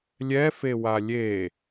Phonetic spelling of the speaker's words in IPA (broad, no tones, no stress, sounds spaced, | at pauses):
lʲ ɛ f e w a lʲ e